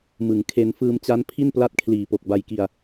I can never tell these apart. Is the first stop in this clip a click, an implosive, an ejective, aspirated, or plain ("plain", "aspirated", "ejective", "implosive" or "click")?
aspirated